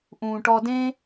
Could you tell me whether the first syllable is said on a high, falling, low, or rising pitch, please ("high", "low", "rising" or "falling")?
low